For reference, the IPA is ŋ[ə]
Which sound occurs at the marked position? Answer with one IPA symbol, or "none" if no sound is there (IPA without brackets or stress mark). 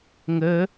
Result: ə